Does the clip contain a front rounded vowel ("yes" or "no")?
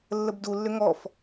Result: yes